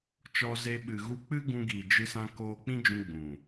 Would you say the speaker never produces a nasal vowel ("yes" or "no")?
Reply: no